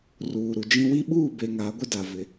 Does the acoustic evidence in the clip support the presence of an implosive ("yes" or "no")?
yes